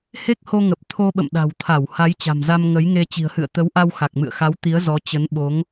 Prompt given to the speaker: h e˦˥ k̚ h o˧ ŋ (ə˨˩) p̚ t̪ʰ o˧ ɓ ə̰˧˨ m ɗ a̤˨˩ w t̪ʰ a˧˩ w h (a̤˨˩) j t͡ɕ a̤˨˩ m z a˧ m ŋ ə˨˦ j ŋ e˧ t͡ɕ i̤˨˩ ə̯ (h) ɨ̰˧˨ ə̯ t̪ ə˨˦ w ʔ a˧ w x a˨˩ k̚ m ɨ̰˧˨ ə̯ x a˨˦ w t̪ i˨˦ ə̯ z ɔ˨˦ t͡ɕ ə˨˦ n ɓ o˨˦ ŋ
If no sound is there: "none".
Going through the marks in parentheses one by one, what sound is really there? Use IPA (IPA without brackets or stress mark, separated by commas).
ə˨˩, a˨˦, h